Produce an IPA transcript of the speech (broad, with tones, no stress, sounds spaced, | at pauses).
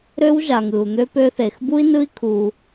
ɾ ø˦ w ʒ a˨ ŋ ɯ˨ u̯ n̪ ø˦ p ø˧ θ e˨ x b u˦ i̯ n ɯ˦ i̯ kʰ u˧